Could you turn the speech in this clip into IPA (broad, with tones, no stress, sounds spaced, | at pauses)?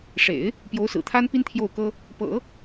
ʂ ḛ˨˩˦ ɪ̯ | p j o˧˥ ʊ̯ s ɹ̩˨˩ t̪ʰ a˥ n p i˥ n t̪ʰ j o˥˩ ʊ̯ k ɤ˥ | p ɤ̰˨˩˦